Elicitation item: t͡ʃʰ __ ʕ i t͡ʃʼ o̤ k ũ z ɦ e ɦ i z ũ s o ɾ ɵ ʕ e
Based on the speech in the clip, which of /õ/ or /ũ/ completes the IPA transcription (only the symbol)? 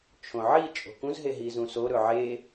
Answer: õ